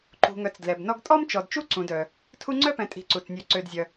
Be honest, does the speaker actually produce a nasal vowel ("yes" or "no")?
yes